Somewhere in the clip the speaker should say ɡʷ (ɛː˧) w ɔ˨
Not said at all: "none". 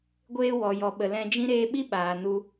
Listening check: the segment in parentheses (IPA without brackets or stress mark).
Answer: eː˧